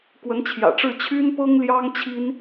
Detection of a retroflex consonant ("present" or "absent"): present